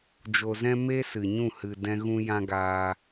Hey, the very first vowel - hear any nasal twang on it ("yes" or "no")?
no